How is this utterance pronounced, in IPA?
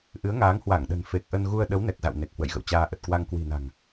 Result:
ʔɨ˨˦ə̯ŋaː˨˦ŋhwa˧˩ŋ ɗə̤˨˩n fe˨˩k̚ʔə˧n ɣu˧ə̯ ɗə˨˦wnɛ˨˩k̚za̰˧˨w ne˨˩k̚hwə̰˧˨j ɣə̰˧˨wt͡ɕaː˧ ʔə˨˩t̚kwa˧ŋ kwi̤˨˩na̤˨˩ŋ

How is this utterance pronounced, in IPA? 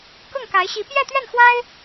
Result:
kʊ˥˩ŋka˧˥ɪ̯ɕi˧˥ pjɛ˥˧t̪ɥɛ˥˩nxwa˥ɪ̯

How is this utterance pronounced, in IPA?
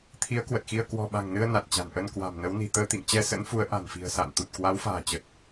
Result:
t̪ʰi˨˦ə̯kwə˨˩t̚xi˧ə̯ kwɔ̤˨˩ɓa̤˨˩ŋnɨ˧ə̯ na˨˩t̚t͡ɕa̤˨˩n ʔə˧nkwa̤˨˩mnə˨˦wni̤˨˩ t̪əː˧t̪ḭ˧˨ŋt͡ɕɛ˧ sə̰˧˥nfu˨˦ə̯ ʔa̤˨˩nfi̤˨˩ə̯ sa̰ː˧˨nt̪u˨˩t̚kwa˨˦wfa̤ː˨˩ t͡ɕə˨˩t̚

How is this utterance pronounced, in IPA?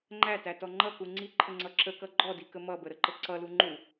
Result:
ŋ͡ǃætætɔ ŋ͡ǃʌku ŋ͡ǀiǃʰəŋ͡ǀʌ ǁəkʌ ɡ͡ǃɔdikə mʌbəɾəǃə ǀʌlu ŋ͡ǃu

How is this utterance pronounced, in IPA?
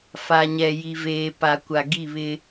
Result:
fa˨ɲɛ˨ji˨veː˨ pa˨kʷa˨ ɡi˦˨βɪ˦

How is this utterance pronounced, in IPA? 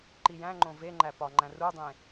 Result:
ǃijæ̃ŋ͡ǃõ veŋ͡ǃæ pɒŋ͡ǃæ̃ rudˤẽ

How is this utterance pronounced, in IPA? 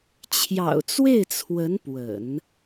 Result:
t͡ɕʰjɑ̰˨˩ʊ̯t͡swe˥˩ɪ̯t͡sʰwə˧˥n pwə̰˨˩˦n

